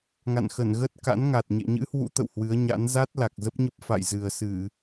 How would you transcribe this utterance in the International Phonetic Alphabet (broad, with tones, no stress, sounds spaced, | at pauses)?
ŋ a̰˧˨ n x ə˧˩ n ɣ ə˦˥ t̚ k a̰˧˥ n ŋ a˨˩ t̚ ɲ ḛ˧˨ ɲ ɨ̰˧˥ h w ṵ˧˥ t̪ ə̰˧˨ w h w ɨ˨˦ ə̯ ɲ a̰˧˥ n z a˦˥ t̚ l a˨˩ k̚ z ə˦˥ p̚ ɲ ə˦˥ p̚ f a̰˧˨ j z ɨ˨˩ ə̯ s ɨ˧˩˨